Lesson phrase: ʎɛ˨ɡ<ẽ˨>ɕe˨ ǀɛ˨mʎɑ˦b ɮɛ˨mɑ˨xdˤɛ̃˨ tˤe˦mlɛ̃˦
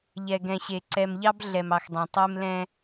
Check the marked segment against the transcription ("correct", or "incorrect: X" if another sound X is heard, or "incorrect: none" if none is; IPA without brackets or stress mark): incorrect: ɛ̃˨